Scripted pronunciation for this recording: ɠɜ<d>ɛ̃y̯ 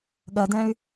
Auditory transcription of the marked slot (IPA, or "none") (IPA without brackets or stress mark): d